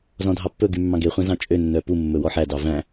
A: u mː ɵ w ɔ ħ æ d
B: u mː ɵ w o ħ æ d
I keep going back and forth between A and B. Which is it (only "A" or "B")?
A